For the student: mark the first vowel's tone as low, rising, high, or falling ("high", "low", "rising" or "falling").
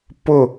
falling